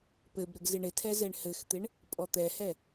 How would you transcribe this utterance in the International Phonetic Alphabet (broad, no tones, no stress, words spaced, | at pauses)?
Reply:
pɘbɾɘɡ zɪɳɪtʰɛ zɛɳhɘxt̪ɪɳ | pʼɔt̪ɛhɛ